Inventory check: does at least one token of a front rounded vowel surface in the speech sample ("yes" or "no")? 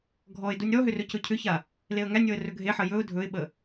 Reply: yes